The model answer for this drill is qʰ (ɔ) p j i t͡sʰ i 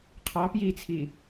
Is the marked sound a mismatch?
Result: yes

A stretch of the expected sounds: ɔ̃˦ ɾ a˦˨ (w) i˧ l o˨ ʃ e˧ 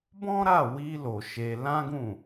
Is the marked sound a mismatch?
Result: no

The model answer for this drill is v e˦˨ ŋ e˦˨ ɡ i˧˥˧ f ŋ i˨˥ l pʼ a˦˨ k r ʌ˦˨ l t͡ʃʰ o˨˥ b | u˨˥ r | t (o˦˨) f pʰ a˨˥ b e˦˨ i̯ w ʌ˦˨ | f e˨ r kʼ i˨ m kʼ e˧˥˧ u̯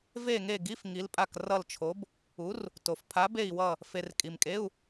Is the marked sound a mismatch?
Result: yes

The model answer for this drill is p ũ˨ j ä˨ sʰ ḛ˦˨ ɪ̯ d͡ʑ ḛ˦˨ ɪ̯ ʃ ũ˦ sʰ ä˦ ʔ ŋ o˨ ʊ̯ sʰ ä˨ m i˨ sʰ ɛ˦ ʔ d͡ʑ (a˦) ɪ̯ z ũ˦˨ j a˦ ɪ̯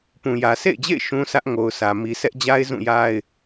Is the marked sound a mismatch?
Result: no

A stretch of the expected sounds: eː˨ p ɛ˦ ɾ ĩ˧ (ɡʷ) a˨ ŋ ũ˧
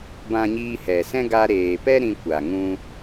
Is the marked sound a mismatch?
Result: yes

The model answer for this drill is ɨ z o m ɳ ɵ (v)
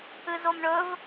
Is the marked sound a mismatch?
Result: no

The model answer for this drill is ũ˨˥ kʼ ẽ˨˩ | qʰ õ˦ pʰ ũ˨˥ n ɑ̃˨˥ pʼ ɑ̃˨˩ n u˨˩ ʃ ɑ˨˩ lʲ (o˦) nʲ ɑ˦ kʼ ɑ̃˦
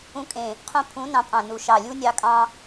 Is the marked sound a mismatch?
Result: yes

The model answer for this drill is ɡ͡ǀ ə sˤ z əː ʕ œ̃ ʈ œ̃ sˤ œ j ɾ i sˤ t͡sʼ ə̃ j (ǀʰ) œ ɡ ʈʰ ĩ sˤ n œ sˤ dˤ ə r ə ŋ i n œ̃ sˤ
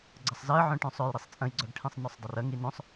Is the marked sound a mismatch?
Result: yes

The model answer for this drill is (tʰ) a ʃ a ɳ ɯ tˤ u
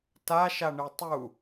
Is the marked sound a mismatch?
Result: yes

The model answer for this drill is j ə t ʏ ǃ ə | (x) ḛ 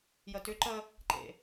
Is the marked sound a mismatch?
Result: yes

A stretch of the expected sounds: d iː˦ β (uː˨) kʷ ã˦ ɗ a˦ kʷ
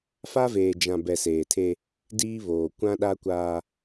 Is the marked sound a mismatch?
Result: yes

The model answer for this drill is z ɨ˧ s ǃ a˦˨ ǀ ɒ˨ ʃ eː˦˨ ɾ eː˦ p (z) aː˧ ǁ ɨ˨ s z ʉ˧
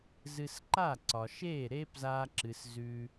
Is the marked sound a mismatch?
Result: no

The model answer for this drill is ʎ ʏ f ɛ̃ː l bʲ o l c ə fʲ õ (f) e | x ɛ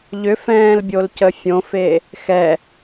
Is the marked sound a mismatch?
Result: no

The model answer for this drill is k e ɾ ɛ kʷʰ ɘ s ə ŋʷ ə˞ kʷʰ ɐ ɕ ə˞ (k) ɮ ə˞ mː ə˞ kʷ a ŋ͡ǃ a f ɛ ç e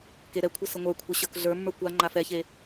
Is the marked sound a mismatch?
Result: no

